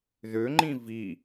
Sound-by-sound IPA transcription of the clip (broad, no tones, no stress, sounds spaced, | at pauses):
ð ø ŋ͡ǃ ĩ v i